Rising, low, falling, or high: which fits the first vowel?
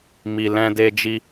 low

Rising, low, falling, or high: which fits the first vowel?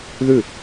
falling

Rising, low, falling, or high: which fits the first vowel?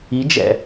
rising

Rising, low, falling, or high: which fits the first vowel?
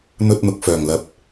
high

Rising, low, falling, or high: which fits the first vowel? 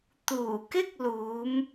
low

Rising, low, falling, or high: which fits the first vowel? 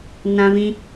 high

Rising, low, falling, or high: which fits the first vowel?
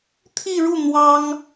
falling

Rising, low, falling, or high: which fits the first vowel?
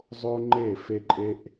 high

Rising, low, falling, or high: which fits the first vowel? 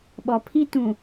low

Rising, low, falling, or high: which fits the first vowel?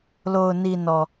low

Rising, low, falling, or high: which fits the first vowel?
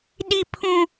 high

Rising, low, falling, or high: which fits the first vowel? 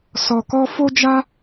low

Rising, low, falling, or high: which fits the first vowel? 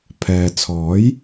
low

